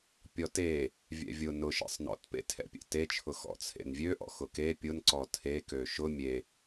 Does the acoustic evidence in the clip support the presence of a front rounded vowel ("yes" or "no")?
yes